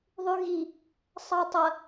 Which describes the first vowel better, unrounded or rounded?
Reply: rounded